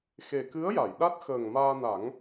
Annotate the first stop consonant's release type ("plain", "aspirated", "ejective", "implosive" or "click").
plain